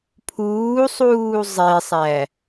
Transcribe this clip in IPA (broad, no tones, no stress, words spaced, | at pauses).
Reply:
pʰuːsˤuː zˤesˤæ